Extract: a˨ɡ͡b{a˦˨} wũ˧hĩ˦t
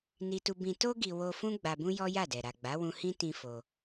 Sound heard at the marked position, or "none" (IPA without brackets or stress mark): a˨˦